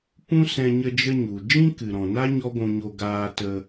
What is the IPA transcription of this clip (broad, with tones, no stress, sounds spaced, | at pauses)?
p ũ˦ s ɛ̃˧ ɲ ə˧ d͡ʒ ə˧ ɲ u˨ d͡ʒ ĩ˦ k ɨ˨ ɾ ɔ̃˨ n a˦ ɲ ɔ˦ ɡʷ ũ˧ ɲ o˧ ɡ aː˧ t ə˧